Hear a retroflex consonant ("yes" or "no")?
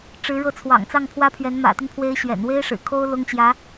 yes